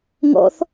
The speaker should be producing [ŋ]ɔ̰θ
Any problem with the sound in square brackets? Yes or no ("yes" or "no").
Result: no